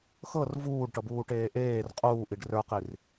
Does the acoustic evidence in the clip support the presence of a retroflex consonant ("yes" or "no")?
yes